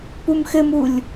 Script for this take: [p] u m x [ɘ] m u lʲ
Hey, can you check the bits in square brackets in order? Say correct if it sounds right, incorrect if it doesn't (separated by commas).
correct, correct